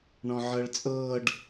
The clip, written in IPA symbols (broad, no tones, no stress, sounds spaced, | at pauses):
ɳ ɔ̃ ʕ ɤ ɭ t͡sʼ ɤː ɖ